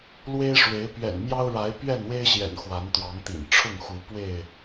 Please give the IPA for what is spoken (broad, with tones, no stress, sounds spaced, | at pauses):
l w e˦ ɪ̯ ʂ w e˨˦ ɪ̯ p ɥ ɛ̰˨˩ n m j ɑ˦ ʊ̯ ɻ a˨˦ ɪ̯ p ɥ ɛ˥˨ n w e˦ ɪ̯ ɕ j ɛ̰˨˩ n x w a˨˦ n t̪ w ɑ˨˦ ŋ t̪ ḭ˨˩ n ʈ͡ʂʰ ʊ˥˨ ŋ x u˨˦ p w e˥˨ ɪ̯